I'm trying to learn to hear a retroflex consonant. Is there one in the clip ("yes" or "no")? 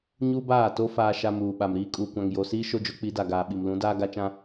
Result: no